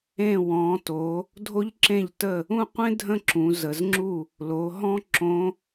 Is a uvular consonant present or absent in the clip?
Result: present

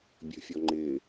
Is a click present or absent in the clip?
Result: present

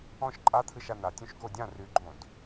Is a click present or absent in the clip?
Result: present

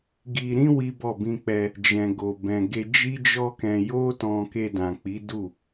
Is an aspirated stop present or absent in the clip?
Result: absent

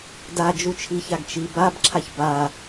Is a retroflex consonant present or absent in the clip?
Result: absent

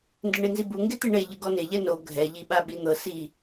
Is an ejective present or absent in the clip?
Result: absent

